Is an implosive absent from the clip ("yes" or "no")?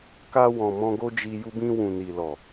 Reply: yes